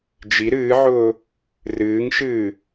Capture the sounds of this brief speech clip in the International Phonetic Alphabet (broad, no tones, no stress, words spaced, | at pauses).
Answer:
d͡ʒi ɾɨːʕʊː | rɨːŋʃɨː